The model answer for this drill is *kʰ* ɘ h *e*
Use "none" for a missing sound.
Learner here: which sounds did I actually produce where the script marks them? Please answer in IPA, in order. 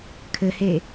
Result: kʰ, e

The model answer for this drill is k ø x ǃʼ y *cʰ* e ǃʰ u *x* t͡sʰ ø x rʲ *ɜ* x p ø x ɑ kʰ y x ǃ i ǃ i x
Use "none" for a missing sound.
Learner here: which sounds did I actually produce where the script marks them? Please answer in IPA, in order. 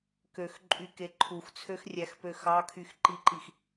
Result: k, x, æ

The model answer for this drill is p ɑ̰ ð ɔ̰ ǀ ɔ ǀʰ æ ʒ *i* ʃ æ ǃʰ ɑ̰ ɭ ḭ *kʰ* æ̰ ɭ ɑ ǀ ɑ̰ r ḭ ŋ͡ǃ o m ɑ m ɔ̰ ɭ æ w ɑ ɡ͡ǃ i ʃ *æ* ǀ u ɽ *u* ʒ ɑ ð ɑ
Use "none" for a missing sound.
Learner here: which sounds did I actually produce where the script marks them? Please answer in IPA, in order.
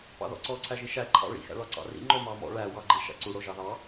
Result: i, x, æ̰, o

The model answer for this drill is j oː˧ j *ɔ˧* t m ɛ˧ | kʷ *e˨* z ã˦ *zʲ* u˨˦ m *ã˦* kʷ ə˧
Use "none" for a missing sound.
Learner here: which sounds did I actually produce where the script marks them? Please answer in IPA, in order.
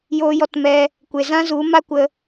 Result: ɔ˧, e˨, z, a˦

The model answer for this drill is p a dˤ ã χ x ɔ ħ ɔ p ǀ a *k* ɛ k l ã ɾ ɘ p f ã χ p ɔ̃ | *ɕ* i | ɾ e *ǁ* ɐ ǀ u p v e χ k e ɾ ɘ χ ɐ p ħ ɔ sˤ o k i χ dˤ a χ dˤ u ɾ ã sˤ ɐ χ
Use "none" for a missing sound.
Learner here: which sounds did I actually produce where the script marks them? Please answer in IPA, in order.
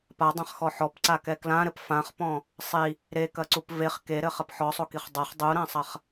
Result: k, sˤ, k

